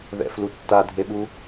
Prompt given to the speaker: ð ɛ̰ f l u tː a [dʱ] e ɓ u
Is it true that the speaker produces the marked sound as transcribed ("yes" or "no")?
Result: yes